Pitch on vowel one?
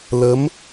rising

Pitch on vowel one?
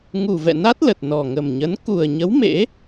low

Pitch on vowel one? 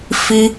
high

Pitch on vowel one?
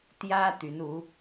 high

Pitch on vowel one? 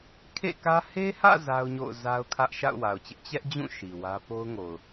falling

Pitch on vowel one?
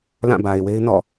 falling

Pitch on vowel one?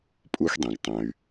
high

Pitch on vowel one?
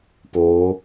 rising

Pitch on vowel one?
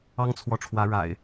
high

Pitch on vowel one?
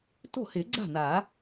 falling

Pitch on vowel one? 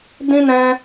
high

